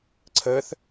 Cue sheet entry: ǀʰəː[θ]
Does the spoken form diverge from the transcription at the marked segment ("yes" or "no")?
no